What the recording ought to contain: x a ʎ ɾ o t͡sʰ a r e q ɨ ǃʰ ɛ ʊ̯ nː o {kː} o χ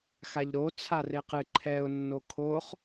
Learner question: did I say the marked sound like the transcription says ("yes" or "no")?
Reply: no